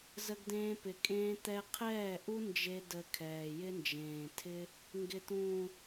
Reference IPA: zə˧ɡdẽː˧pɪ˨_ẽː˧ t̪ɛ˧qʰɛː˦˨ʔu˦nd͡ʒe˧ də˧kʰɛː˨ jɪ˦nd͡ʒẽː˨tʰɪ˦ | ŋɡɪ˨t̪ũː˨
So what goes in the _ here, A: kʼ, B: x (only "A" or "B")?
A